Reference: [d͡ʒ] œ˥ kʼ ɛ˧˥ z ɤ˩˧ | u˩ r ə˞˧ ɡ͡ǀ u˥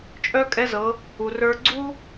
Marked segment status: incorrect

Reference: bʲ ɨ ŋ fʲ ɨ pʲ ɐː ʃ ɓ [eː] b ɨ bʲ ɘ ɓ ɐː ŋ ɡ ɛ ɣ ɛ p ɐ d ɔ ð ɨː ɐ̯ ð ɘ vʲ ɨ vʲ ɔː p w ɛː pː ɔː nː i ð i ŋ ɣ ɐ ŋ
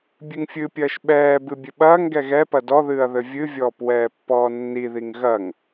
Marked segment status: incorrect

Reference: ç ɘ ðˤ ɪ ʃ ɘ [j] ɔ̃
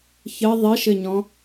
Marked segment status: incorrect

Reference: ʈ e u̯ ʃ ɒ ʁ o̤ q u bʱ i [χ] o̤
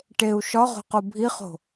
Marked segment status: correct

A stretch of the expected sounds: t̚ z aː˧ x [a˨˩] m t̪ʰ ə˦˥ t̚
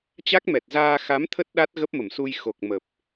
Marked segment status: incorrect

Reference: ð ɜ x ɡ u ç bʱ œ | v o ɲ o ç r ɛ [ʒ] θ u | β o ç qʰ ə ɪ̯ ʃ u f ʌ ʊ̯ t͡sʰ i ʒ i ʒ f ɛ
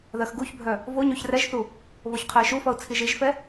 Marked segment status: correct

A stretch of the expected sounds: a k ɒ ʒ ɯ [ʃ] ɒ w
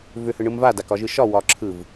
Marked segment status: correct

